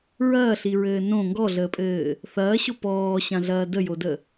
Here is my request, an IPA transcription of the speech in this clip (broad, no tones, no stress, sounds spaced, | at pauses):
ɹ ɐː ɬ i ɹ ɘː n õ ŋ ɡ ɔ ɮ əː pʼ ɘː | θ ɐː ɕ o p ɔː ɕ ã ɮ ɐː d ə j o d ə